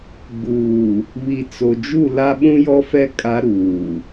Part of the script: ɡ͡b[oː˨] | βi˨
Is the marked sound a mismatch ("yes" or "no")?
yes